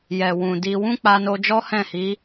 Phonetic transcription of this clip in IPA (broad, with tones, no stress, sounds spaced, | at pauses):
j ɛ˨ w ũ˨ d i˧ w ũ˦ k͡p a˧ n o˧ d͡ʒ ɔ˦ h ɛ̃˦˨ h i˨˦